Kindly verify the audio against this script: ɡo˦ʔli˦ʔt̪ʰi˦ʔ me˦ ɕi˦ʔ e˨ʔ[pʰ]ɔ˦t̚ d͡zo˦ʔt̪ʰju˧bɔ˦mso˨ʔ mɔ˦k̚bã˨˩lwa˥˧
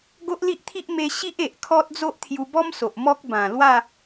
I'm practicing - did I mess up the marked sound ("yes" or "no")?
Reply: yes